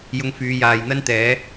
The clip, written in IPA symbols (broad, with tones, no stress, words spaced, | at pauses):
jʊ˧ŋfyː˨˧jaː˨j n̪ɐ˥nt̪ɛː˨˥